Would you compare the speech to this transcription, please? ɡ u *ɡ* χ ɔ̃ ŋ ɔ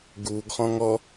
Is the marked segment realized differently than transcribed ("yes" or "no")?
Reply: no